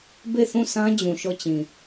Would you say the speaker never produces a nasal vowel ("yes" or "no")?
no